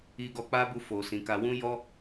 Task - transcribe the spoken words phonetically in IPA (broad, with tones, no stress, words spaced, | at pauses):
i˧ɡɔ˧k͡pa˦bu˧ fo˨sĩ˨ka˧ wũ˦jɔ˦